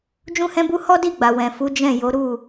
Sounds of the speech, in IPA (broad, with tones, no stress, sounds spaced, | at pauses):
d͡ʒ ũ˦ h ɛ̃˦ b u˦ h ɔ˦ d i˦˨ ɡ͡b a˨ w ɛ̃˨ f u˨˦ d͡ʒ ɛ̃˦˨ j o˨˦ ɾ u˦˨